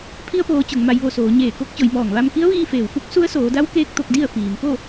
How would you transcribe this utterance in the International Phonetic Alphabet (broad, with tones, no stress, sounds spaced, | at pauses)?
pʰ i˧ ə̯ p oː˩˧ t͡ɕ o˩˧ ŋ m a˧ j ʋ o˥˨ s oː˩˧ ɲ eː˧˩ k o˧˥ k̚ t͡ɕ o˩˧ j m ɔː˧˩ ŋ ʋ a˧ m k i˧˥ ə̯ ʋ iː˧ f eː˩ w f u˧˥ k̚ s u˧˥ ə̯ s oː˩˧ d a˧˥ w k eː˧ k̚ t̪ o˧ k̚ d i˥˨ ə̯ f iː˩ m p o˥˨